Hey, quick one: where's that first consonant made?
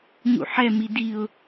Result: palate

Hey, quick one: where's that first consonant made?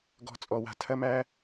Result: velum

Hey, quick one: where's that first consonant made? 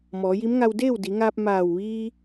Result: lips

